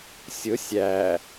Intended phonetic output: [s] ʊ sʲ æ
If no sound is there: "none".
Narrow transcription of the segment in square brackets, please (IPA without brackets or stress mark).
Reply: sʲ